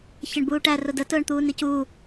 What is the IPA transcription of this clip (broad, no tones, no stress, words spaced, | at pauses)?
çəɳbuːʈæ rʊdə tʊːɳt̪uːnicu